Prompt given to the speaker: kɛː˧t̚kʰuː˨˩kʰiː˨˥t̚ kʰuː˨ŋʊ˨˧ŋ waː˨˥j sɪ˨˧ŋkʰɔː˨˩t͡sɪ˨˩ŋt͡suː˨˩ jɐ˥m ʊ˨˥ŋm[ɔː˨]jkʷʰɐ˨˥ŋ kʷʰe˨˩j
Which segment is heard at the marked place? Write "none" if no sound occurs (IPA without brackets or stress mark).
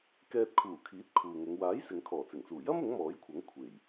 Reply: ɔː˨˥